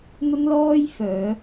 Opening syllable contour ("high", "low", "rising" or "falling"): high